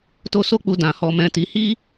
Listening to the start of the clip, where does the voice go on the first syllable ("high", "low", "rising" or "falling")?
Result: high